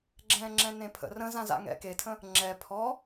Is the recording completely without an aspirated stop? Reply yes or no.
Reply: no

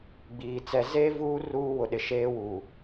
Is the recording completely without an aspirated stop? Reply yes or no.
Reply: yes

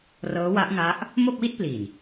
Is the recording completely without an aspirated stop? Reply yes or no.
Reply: yes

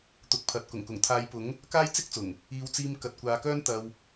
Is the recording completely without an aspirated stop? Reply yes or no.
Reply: no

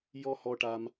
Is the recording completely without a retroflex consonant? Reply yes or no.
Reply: no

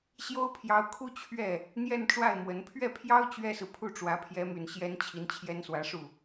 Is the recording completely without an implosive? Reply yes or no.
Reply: yes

